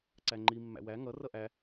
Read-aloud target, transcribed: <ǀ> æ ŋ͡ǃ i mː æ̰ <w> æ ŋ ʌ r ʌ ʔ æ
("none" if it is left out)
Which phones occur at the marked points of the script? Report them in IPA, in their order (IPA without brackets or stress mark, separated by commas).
ǀ, w